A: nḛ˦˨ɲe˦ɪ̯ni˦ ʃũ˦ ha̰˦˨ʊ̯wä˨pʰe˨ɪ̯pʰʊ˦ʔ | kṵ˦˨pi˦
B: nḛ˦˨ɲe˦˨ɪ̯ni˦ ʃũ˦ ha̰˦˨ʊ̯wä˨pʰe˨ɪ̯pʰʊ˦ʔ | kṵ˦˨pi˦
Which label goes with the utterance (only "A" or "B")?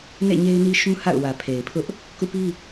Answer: A